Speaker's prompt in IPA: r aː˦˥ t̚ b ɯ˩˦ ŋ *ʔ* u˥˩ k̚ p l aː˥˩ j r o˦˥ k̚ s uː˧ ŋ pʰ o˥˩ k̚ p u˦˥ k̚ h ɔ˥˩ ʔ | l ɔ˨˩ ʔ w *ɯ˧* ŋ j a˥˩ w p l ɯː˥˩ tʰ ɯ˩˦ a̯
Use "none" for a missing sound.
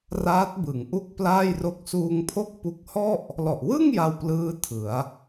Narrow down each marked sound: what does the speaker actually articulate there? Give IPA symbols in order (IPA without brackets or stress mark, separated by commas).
ʔ, ɯ˥˩